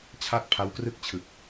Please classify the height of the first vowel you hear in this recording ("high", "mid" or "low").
low